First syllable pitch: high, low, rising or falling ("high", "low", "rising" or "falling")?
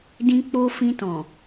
high